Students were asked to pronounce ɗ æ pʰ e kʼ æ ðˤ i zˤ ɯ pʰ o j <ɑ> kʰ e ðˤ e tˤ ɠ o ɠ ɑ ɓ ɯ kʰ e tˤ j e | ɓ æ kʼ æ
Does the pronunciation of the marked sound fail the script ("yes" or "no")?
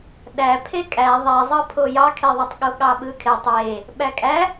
no